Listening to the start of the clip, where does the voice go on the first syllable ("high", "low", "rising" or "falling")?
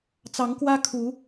rising